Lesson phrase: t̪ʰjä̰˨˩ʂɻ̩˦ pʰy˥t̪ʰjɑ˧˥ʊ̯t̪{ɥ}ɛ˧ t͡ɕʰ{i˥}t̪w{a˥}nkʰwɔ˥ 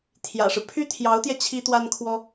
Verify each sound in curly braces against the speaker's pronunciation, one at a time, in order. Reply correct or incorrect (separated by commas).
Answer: incorrect, correct, correct